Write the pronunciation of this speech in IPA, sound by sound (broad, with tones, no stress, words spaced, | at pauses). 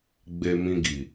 ɡ͡be˧mĩ˧ɡi˨